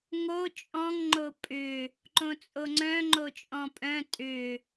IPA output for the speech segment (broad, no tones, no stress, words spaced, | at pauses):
ŋo t͡ʃʼɔ̃ŋ ŋ͡ǃopʼʏ | ǃõt͡sʼoŋ͡ǀœ̃ ŋ͡ǃot͡ʃʼɔ̃pʼœ̃ tʼʏ